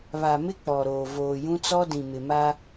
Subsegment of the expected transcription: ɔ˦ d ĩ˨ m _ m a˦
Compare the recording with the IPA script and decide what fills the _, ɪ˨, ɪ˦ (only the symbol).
ɪ˨